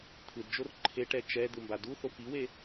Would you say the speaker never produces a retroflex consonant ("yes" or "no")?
no